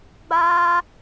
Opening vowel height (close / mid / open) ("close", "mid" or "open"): open